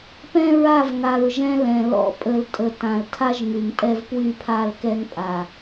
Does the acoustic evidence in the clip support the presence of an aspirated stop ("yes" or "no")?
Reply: yes